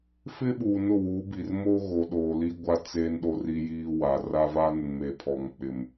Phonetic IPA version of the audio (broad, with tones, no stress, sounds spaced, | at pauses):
f ɪ˦ ɓ uː˨ n ʊ˦˨ w uː˨˦ b i˨ r m o˦ ɣ o˨ ɗ oː˨ l i˦ ɡʷ a˦ t͡s eː˦ n ɗ o˦ r iː˦ j iː˦ w a˨ r a˦ v a˦ n ʊ˨ n m e˨ pʰ ɔ˨ ŋ k͡p ɪ˨ m